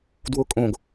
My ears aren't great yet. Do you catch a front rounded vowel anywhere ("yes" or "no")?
no